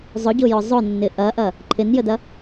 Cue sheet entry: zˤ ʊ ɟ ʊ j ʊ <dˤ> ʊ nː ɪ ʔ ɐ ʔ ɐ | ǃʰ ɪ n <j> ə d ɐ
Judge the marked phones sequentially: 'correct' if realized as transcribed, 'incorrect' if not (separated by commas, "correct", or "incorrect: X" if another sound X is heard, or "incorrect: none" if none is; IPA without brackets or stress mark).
incorrect: zˤ, correct